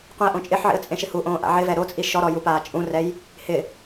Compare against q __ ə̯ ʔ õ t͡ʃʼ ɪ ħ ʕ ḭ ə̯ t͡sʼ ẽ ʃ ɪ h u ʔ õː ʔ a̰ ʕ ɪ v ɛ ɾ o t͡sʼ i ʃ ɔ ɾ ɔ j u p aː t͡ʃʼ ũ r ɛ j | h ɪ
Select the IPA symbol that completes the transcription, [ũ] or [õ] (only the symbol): ũ